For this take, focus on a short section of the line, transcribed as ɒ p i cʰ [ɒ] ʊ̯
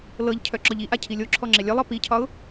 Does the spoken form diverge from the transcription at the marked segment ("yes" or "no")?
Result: no